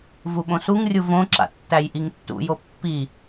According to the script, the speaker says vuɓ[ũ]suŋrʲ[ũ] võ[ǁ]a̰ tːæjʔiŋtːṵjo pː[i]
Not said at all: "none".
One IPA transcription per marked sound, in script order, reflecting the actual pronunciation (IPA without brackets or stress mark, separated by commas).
õ, u, ǁ, i